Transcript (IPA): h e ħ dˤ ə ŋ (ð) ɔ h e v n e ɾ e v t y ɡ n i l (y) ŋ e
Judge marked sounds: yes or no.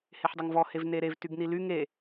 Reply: no, yes

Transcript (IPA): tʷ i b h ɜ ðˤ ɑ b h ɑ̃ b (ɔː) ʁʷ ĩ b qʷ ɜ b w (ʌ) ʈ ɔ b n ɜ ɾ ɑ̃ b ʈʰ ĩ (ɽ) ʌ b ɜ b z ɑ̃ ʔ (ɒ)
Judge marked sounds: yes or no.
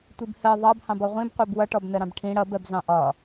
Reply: no, yes, yes, yes

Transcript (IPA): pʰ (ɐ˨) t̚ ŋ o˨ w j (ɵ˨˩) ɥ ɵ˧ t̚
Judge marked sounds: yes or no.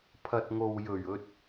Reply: yes, yes

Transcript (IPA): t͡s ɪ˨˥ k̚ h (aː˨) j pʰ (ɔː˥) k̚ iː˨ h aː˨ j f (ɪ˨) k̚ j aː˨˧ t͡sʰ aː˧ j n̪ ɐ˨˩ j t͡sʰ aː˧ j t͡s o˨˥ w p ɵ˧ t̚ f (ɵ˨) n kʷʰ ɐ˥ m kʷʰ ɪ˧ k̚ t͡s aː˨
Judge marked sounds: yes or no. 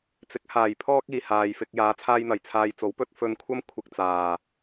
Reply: yes, yes, no, no

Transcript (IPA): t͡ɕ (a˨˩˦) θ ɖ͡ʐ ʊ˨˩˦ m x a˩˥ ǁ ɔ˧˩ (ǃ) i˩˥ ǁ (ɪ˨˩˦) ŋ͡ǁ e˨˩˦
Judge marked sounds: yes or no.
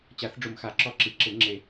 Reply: yes, no, yes

